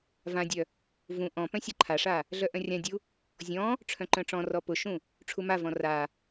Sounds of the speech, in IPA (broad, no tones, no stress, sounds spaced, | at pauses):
v ã dʲ œ | v ũ ʔ ɔ̃ p œ̃ sʲ œ ǃʰ a ʂ a | ɮ œ ʔ œ̃ rʲ ã dʲ u | zʲ ɔ̃ | ʈ͡ʂʰ œ̃ ǃ œ̃ ʈ͡ʂ ɔ̃ r ɔ p ʊ ʃ ũ | ʈ͡ʂʰ u m a v ɔ̃ r a